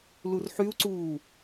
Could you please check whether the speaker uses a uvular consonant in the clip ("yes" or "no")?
no